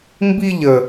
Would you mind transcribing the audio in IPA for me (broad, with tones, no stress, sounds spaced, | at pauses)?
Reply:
m b i˦ ʎ ə˦